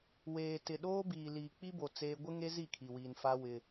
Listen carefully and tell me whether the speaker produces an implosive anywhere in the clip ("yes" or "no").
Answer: yes